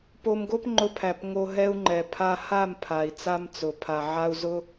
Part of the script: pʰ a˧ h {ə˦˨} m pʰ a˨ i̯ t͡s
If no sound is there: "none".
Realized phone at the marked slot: a˦˨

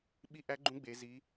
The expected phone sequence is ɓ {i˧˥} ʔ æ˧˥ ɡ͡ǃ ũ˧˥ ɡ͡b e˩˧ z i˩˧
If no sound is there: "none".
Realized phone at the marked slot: i˧˥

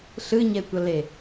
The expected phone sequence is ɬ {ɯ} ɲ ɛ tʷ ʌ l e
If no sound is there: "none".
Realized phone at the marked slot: ɯ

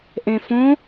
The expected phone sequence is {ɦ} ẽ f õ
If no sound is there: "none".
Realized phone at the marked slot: ʔ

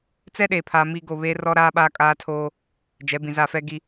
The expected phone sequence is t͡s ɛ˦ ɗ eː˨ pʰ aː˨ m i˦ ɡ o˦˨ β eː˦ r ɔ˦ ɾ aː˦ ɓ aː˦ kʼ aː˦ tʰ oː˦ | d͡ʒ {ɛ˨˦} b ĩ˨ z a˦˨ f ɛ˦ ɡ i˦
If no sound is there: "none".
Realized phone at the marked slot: ɛ˨˦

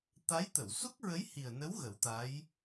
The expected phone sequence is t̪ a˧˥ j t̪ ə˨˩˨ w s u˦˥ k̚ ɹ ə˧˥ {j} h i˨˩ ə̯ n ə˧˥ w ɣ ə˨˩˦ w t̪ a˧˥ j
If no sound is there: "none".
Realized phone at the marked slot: j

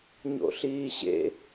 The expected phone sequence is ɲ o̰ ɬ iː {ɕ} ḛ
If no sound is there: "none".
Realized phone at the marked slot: ɕ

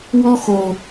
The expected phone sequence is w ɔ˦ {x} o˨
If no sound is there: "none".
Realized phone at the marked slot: x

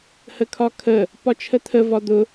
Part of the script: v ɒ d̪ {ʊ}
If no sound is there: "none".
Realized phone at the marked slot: ʊ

